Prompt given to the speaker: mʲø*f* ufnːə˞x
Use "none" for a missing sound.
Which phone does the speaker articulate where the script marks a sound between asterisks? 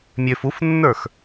f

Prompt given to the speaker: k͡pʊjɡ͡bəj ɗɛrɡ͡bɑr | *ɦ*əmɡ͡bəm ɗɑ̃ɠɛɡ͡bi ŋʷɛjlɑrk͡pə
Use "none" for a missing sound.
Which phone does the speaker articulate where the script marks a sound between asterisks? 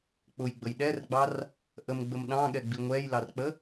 ʔ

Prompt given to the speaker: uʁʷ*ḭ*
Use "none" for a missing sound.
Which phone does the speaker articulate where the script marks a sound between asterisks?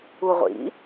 ḭ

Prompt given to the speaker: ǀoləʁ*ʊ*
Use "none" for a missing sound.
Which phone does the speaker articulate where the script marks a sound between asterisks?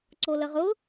ʊ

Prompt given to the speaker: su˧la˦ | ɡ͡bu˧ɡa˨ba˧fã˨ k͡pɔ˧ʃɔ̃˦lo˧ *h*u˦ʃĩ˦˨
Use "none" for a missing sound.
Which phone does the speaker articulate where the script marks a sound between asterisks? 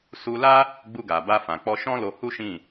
h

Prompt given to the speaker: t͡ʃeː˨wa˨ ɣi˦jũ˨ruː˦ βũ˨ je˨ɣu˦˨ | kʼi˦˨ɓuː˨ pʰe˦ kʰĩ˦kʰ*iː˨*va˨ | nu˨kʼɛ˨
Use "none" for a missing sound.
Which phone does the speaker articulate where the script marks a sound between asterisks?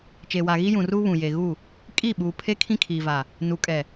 iː˨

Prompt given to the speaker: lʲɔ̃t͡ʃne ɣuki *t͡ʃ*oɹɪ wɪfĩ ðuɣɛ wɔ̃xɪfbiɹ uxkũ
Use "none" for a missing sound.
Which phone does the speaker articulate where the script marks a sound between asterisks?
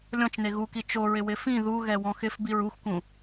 t͡ʃ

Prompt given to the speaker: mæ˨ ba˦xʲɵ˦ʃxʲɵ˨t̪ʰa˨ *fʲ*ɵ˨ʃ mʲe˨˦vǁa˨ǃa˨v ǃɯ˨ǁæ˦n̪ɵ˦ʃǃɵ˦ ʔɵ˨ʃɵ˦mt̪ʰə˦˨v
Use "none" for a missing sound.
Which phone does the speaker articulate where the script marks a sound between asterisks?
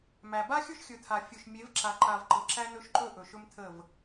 fʲ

